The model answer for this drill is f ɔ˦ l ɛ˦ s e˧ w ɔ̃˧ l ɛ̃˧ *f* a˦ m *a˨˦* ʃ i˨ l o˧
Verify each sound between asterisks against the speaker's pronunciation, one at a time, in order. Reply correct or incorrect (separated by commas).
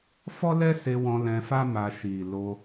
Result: correct, incorrect